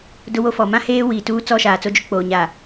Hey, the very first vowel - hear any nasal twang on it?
no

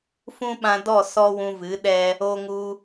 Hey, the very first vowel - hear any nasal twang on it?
yes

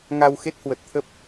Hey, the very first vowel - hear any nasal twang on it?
no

